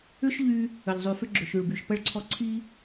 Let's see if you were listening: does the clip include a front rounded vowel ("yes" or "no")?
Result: yes